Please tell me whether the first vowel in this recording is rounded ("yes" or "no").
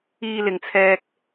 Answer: no